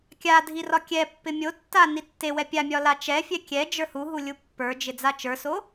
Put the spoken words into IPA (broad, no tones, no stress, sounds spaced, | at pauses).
kʲ a dʱ i r ɒ kʲ ɛ pː ɪ mʲ o tː a n i tː e w ɛ pʲ a mʲ ɒ l a t͡ʃ ɛ fʲ ɛ kʲ ɛ d͡ʒ ə˞ h u ɦ u lʲ u pː ə˞ d͡ʒ ɪ d͡z a t͡ʃ ə˞ s o